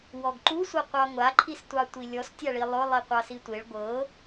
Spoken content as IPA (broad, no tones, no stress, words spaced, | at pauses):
wɔɡǃusʷɤqʷɑ ŋʷaǃʰistʷɑtʷi lʲɔstʲaɭi lˠʊ lˠiqʷɑsitʷeɭ ɡʷɤ